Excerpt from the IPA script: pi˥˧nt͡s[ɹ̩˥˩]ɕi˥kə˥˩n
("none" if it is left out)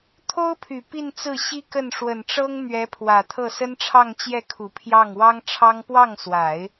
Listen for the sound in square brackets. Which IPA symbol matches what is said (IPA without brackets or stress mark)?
ɹ̩˥˩